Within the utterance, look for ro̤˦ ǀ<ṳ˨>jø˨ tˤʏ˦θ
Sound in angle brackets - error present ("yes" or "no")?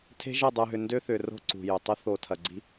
no